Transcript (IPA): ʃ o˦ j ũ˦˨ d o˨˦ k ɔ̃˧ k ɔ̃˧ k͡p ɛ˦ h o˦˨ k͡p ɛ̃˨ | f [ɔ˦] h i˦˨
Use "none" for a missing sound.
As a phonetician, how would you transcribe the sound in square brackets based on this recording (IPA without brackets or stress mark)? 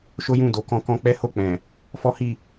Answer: ɔ˦